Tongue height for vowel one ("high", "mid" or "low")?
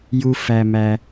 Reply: high